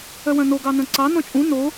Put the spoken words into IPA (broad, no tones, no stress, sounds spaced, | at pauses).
œ w œ̃ n o ɡ ɑ n œ̃ ǀ ɑ n ɔ̃ t͡ʃʼ ũ n o